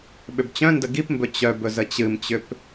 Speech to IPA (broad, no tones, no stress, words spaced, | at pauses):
ɓʏbt͡ɕœ̃ndə ɡipmbɵ t͡ɕœbɵz ət͡ɕɨmt͡ɕʏp